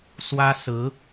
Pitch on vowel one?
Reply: high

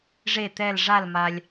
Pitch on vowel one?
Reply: falling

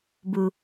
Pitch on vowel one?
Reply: low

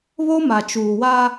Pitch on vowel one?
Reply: high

